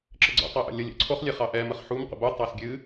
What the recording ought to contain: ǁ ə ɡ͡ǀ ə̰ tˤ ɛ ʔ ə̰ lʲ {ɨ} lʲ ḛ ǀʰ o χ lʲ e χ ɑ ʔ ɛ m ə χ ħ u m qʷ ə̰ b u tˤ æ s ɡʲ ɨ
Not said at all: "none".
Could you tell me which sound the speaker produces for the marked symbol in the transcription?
ə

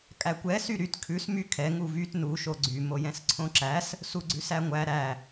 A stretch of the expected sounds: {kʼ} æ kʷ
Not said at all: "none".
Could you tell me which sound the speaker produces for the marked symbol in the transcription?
kʼ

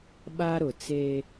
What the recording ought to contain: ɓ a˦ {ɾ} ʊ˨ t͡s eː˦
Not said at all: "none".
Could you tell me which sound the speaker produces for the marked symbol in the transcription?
ɾ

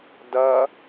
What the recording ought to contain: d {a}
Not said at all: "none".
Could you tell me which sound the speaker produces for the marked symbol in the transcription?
ɐ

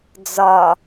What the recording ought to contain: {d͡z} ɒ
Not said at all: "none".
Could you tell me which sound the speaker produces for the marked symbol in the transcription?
d͡z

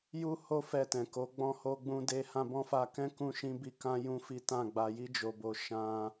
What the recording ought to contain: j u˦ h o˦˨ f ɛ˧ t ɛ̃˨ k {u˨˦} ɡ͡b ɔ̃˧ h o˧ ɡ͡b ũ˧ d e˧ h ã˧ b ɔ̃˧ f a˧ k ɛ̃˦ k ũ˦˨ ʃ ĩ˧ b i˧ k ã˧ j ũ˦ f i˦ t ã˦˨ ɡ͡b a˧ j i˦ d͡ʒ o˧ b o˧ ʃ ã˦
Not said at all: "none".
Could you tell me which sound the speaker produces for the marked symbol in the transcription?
o˨˦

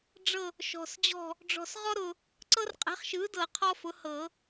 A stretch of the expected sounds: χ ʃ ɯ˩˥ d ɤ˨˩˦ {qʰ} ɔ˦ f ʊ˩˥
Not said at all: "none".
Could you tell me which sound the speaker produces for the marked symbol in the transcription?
qʰ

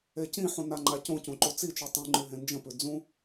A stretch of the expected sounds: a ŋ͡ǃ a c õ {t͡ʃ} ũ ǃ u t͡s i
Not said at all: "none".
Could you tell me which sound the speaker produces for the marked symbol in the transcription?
c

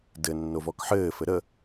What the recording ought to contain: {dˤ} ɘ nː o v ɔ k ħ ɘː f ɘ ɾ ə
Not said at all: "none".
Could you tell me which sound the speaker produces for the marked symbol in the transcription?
d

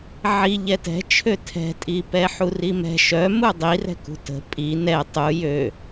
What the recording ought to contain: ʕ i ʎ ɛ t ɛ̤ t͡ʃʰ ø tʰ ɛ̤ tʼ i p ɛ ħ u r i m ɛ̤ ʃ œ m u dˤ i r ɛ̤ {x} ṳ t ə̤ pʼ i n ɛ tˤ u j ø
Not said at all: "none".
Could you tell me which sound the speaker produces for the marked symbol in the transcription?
k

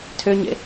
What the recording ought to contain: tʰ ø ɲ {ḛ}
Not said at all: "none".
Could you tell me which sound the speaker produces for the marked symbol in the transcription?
ḛ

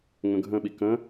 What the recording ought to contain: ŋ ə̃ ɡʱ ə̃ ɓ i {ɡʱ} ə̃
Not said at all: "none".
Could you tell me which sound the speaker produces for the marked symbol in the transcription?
k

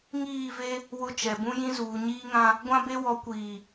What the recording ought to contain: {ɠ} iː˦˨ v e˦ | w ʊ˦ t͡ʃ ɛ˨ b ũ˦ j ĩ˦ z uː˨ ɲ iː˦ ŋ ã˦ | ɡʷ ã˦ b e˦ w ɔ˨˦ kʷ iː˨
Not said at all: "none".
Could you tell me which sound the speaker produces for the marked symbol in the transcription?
ŋ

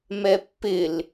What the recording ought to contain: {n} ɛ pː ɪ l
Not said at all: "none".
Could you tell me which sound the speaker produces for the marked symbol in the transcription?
m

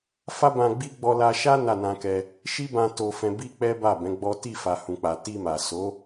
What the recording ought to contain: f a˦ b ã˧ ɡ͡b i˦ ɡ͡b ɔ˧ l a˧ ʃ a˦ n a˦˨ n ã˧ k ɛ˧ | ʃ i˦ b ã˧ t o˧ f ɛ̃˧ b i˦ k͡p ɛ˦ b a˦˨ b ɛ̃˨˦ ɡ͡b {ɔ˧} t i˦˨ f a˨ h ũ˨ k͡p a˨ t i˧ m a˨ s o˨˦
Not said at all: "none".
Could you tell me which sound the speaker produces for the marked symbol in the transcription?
ɔ˦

